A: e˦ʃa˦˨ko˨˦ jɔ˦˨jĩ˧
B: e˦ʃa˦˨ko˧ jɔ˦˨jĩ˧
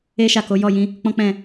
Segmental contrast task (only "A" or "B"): A